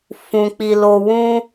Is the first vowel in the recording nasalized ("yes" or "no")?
yes